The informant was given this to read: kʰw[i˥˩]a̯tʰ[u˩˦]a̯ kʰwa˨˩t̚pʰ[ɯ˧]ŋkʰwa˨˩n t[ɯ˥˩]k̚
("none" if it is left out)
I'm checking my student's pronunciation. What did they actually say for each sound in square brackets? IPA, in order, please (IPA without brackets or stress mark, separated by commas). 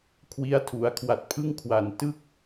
i˦˥, u˩˦, ɯ˥˩, ɯ˥˩